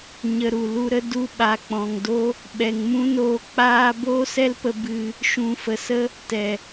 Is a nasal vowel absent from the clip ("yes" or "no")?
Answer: no